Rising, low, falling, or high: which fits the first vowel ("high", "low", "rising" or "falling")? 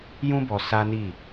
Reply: high